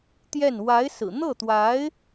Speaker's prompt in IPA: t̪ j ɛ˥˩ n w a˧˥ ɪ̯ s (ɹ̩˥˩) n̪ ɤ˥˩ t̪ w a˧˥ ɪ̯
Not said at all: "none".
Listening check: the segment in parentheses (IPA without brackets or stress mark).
ɹ̩˨˩